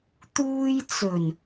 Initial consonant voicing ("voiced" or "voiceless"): voiceless